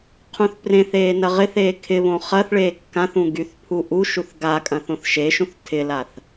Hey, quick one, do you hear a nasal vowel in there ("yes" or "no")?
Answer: yes